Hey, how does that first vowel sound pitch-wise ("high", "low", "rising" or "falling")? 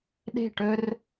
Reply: falling